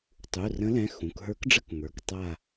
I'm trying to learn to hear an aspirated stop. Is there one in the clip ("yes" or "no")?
no